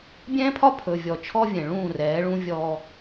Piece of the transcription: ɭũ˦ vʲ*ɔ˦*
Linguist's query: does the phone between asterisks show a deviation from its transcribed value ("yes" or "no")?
yes